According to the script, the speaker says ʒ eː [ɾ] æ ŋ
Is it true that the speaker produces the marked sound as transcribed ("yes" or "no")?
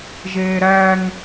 yes